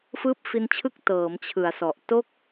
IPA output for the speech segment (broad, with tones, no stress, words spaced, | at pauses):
fɯː˦˥p̚fi˧nt͡ɕʰɯ˦˥k̚ tɤː˩˦m t͡ɕʰɯ˩˦a̯sɔ˨˩ʔ to˥˩k̚